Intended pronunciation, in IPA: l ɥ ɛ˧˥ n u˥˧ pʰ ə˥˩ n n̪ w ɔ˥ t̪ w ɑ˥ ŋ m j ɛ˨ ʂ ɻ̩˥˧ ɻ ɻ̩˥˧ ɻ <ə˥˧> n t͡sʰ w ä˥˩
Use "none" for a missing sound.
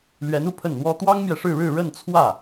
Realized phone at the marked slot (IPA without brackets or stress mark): ə˥˧